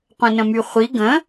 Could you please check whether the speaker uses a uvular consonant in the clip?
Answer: yes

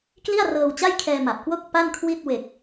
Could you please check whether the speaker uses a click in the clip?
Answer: no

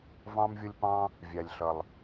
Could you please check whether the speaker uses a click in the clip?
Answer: no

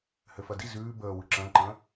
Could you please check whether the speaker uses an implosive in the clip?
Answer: no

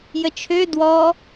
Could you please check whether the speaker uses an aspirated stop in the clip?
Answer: yes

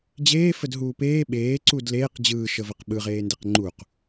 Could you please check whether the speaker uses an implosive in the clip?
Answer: yes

